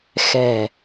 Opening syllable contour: low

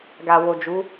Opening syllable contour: low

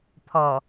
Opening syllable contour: low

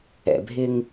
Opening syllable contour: low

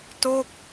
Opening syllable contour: falling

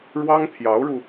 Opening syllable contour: high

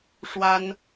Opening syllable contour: high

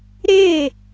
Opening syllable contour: falling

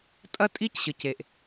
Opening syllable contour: high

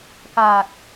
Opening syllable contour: low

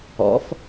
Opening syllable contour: rising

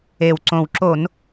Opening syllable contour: low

